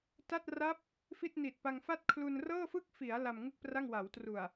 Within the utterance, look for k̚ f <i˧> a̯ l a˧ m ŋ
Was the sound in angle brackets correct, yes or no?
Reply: no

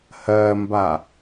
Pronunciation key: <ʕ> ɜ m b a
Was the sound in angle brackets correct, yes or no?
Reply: no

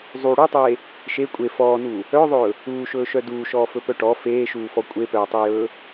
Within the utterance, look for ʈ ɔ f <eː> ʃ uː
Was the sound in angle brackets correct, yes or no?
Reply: yes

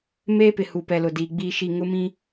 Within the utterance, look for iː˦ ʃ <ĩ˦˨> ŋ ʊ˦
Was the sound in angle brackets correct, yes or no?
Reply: no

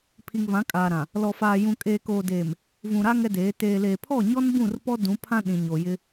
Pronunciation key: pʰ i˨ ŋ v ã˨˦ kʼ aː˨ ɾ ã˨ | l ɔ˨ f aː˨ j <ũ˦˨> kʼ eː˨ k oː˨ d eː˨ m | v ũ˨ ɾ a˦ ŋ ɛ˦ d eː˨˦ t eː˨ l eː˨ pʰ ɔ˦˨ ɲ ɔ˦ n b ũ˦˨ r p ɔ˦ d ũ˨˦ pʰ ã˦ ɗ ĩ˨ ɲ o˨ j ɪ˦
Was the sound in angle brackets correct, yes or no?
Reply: no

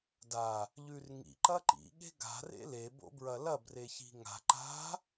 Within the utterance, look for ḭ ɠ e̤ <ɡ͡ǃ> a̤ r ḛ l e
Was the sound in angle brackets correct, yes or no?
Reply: no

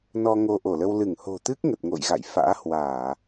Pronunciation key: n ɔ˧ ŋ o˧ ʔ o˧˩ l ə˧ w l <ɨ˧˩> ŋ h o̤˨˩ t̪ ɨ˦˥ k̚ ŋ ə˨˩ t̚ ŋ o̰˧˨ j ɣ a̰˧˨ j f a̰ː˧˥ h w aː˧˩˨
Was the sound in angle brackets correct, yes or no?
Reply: yes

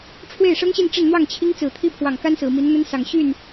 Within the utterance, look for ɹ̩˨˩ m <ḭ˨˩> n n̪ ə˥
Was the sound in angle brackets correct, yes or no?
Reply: no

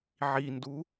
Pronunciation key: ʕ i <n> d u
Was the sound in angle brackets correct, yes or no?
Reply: yes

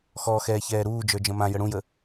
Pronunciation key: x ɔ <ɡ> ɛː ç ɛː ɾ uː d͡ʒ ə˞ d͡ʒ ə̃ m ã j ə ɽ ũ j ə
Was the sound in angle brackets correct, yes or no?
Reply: no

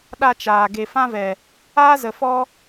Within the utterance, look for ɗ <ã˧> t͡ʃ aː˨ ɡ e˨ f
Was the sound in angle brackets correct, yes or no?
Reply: no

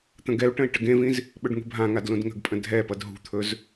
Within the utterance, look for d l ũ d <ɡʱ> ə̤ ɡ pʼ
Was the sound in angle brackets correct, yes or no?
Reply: no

